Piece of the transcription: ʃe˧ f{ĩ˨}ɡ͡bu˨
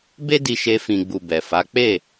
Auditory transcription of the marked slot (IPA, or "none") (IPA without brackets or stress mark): ĩ˨